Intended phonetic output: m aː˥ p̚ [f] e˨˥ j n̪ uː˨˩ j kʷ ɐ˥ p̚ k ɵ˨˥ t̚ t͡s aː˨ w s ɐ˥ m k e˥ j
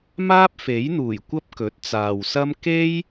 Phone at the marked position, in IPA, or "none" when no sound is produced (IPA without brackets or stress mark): f